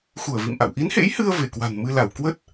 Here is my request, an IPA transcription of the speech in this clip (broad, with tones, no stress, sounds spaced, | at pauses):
x u˧˩ ə̯ v ḭ˧˨ m ʔ a̰˧˨ w ʔ i˨˦ n h ḛ˧˥ j h ɨ˧ ə̯ v e˧˩ k w a̤˨˩ n m ɨ˧ l a˧˩ w k w ə˦˥ t̚